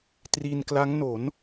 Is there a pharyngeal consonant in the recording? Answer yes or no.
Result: no